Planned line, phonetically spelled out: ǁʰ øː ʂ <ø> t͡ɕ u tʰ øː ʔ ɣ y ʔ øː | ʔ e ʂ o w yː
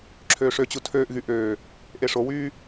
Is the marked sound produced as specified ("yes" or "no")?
yes